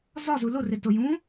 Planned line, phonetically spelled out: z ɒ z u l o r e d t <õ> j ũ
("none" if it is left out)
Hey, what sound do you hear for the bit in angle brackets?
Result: o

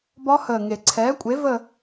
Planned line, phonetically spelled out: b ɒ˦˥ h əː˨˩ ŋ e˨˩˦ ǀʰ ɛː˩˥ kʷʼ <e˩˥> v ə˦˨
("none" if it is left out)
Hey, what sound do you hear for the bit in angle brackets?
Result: e˩˥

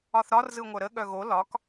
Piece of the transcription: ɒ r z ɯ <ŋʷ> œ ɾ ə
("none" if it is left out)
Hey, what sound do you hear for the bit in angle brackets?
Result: ŋʷ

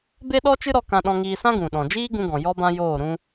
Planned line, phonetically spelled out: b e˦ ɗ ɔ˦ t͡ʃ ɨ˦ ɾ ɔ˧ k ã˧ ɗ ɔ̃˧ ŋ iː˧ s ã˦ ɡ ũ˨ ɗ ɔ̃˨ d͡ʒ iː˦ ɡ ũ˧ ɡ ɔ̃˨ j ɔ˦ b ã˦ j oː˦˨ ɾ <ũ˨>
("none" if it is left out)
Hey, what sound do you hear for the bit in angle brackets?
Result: ũ˧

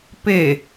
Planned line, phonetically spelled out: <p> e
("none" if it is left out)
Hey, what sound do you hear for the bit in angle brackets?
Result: p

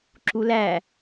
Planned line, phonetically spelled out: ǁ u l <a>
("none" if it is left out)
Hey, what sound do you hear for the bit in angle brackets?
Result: æ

